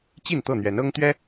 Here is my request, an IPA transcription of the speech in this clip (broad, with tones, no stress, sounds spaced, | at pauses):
t͡ɕ i˥˨ n t̪ ɤ˥˨ n̪ ɥ ɛ˨˦ n ɤ˦ ŋ t̪ ɥ ɛ˦